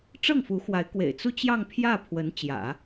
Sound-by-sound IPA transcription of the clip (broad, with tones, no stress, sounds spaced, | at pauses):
ʈ͡ʂ ɤ˥˩ ŋ f u˧˥ x w a˧˥ ɪ̯ k w ḛ˨˩ ɪ̯ t͡s u˥˧ t͡ɕ j ɑ˥˧ ŋ pʰ j ä˥˩ pʰ w ə˧˥ n t͡ɕ j ä̰˨˩˦